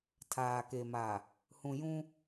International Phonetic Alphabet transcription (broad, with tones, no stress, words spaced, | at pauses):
tʰaː˨ke˨ma˨ | hũ˨jũ˦